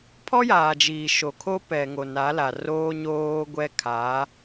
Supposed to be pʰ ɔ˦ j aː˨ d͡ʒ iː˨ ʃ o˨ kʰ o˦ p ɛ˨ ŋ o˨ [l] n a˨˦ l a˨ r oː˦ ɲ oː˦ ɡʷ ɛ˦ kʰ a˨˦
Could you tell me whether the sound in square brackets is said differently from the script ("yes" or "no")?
yes